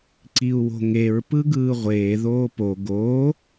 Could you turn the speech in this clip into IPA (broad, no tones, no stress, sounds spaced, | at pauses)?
ǀ i u̯ w o̤ ŋ e ɹ p ɯ ɡ ɯː ʁʷ eː ð oː p o ɡ o